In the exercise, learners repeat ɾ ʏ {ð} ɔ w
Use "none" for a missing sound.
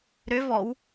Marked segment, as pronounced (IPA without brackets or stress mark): v